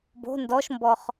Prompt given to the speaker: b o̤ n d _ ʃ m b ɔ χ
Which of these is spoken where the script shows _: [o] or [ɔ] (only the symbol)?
ɔ